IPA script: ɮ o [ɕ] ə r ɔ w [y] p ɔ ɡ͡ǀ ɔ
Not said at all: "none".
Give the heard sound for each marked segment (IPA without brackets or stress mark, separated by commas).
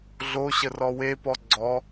ɕ, e